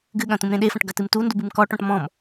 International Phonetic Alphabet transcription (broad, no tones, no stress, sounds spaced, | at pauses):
ɡ ɨ ɠ ɐ̃ t̪ ũ m ɾ ẽ ɗ e f ɐ̃ ʈ ɡ ɐ t ɨ m t u n d u b ɨ m k ɔ ʈ ɔ̃ ʈ m ɔ̃ m